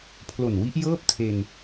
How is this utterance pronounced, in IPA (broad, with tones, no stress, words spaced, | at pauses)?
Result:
pʰlo˨˩nwi˦˥ʔjɤː˥˩p̚ tʰe˧n